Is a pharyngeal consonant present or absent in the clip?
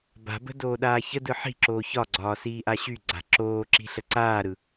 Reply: present